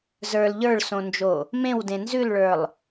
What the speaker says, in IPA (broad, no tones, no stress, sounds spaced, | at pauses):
z ə˞ l ʎ ə˞ ɭ s õ n d͡ʒ o | m ẽ w d ẽ n z ʉ l ɭ ə˞ lˠ